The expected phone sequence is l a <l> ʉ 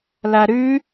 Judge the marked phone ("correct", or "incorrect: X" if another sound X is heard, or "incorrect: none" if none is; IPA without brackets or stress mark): incorrect: ɾ